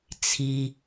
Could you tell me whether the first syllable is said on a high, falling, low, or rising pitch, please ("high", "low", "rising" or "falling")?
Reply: low